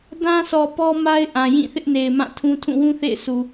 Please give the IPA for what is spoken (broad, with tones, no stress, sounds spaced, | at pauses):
d ã˦ s ɔ˨ p ɔ˦ m a˦ ɪ̯ ʔ ã˨ j ĩ˦˨ θ ɪ˦ ʔ n e˨ ɪ̯ m ã˦˨ tʰ ũ˦ tʰ ũ˦˨ w ũ˦ θ ḛ˦˨ ɪ̯ sʰ u˨